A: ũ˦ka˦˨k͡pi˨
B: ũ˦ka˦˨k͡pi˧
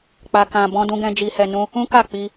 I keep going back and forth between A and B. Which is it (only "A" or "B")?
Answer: B